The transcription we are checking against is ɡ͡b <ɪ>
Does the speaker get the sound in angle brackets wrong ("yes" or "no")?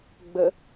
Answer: yes